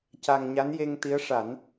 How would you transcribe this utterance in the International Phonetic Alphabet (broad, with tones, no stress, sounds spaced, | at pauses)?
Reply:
c a˧ ŋ ɲ a˧˥ n j e˧ ŋ t̪ i˧˥ ə̯ ʂ a˨˩˦ n